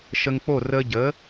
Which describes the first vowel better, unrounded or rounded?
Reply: unrounded